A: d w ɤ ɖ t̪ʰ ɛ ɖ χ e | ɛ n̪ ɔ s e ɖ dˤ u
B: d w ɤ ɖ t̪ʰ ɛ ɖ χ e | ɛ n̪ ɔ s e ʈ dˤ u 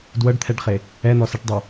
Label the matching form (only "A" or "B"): B